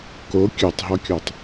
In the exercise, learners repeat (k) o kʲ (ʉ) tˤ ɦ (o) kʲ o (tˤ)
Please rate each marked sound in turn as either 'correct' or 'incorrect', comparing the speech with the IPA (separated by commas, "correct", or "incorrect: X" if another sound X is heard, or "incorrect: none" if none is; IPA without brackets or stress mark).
correct, correct, incorrect: ɔ, correct